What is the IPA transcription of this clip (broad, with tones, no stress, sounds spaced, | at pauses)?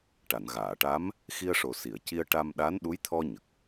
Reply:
ʈ a˨˩˨ n ɣ aː˨˩˨ ʈ a˧˥ m | x i˧ ə̯ ʂ o˨˩ s i˨˩˨ ə̯ c i˧ ə̯ ʈ a˧ m ɗ a˧˥ n ɗ u˧˥ j t̪ʰ ɔ˧ ɲ ə˨˩ k̚